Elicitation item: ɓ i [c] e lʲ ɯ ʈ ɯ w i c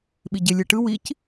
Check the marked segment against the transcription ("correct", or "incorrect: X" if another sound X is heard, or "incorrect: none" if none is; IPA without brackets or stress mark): incorrect: ɟ